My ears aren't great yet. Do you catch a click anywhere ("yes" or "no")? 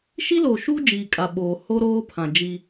no